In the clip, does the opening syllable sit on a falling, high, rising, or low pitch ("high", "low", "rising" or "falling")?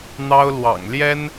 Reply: high